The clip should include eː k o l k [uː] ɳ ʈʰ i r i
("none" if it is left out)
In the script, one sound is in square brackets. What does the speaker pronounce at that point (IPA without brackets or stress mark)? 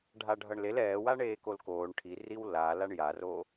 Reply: oː